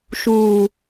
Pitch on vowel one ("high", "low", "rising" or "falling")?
low